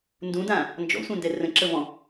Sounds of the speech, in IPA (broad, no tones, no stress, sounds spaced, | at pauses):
n d ũ d ã | n d͡ʒ ɔ̰ sʷ ɛ̃ n d ɛ r ə̃ ǁ ə v ɔ̃